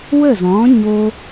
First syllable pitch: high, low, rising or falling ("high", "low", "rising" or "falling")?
falling